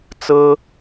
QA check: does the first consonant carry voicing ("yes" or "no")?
no